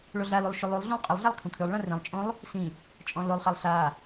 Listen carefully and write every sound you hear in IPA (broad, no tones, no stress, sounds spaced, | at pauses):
ɭ o ɮ a l u lˠ ʃ u lˠ u lˠ ɮ ũ lˠ qʼ ɘ lˠ ɮ a lˠ kʰ ũ kʰ ʉ lˠ ɭ ã r ĩ lˠ t͡ʃʼ õ lˠ | s ĩ | t͡ʃʼ ɔ̃ l o lˠ χ a lˠ ɬ a